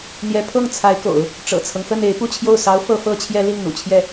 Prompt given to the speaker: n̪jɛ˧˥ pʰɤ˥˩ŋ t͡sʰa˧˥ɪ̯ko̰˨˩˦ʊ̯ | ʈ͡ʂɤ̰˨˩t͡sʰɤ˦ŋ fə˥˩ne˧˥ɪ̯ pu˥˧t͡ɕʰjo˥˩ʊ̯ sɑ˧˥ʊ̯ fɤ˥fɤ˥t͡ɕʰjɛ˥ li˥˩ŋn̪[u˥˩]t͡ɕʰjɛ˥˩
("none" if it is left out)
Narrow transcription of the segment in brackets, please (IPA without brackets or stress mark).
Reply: ṵ˨˩